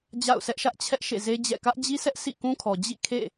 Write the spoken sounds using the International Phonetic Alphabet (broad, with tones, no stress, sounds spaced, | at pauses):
d͡ʑ a̰˦˨ ʊ̯ sʰ ɛ˦ ʔ ʃ ä˦ ʔ t͡ɕʰ ɛ˦ ʔ ʃ ḛ˦˨ z e˦ d͡ʑ ɛ̰˦˨ k ä˦ ʔ d͡ʑ i˦ s ɛ˦ ʔ s ḭ˦˨ k ũ˦ kʰ ɔ˨ d͡ʑ ḭ˦˨ kʰ ḛ˦˨